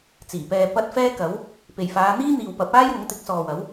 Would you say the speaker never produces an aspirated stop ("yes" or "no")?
yes